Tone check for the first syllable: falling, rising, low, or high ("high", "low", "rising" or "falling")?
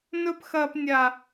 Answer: high